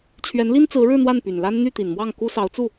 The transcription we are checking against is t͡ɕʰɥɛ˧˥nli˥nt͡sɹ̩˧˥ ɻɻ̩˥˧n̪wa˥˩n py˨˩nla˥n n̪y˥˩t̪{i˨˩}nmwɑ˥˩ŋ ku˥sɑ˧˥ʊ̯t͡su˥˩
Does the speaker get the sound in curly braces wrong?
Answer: no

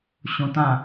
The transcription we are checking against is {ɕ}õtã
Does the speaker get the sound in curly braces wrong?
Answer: no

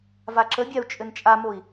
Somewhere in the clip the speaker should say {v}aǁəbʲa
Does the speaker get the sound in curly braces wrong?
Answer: no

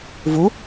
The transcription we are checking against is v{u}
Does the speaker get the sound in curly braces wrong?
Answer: no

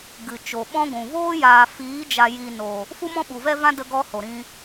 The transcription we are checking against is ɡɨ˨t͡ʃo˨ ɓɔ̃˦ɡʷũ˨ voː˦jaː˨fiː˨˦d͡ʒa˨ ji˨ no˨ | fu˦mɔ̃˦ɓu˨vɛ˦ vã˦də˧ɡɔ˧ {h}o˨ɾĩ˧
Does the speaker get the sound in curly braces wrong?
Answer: no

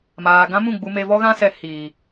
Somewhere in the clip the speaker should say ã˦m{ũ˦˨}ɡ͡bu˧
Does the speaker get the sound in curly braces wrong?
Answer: no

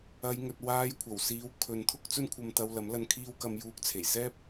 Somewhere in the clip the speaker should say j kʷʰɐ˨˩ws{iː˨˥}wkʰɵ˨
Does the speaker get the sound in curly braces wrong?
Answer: no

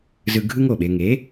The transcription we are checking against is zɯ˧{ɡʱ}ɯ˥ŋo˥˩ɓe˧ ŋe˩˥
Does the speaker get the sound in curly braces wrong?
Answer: no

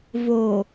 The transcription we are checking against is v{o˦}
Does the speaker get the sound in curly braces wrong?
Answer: yes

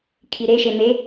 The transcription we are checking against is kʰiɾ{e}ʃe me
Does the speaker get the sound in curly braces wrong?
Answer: no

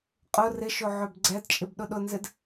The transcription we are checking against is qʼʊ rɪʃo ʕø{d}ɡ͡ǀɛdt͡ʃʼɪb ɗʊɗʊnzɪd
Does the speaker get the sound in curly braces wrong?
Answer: yes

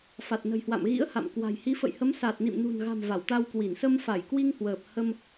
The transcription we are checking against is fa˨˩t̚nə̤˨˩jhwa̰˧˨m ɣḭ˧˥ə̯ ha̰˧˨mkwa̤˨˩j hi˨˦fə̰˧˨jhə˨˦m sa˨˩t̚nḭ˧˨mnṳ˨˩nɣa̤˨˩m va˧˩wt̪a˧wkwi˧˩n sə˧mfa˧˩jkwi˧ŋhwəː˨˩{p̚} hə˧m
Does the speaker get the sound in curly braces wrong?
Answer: no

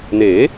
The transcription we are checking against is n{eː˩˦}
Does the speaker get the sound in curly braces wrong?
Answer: no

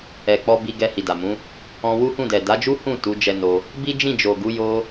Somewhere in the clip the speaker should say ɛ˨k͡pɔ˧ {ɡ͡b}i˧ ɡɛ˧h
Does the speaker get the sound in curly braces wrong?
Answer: yes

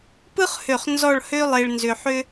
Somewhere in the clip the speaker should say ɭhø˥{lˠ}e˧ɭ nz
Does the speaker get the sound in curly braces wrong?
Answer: no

